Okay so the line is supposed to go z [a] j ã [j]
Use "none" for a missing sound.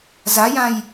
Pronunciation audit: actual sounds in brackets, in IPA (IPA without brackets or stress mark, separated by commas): a, j